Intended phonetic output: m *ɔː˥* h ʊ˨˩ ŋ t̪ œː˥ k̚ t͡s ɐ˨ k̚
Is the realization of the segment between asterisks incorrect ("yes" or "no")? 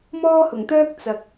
no